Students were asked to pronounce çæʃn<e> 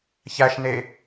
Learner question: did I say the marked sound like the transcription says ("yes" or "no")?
yes